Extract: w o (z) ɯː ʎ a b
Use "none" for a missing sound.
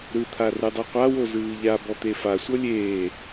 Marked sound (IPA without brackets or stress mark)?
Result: z